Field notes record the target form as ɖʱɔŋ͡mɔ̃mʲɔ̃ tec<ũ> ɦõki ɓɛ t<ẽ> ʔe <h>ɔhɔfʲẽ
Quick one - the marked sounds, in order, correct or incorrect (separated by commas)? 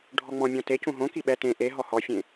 correct, correct, incorrect